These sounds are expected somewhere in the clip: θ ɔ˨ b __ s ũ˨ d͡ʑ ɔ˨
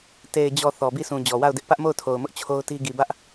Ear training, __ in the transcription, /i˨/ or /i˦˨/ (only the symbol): i˦˨